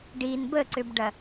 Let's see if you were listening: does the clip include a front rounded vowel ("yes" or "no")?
yes